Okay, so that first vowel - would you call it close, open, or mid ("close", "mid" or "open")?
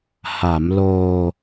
open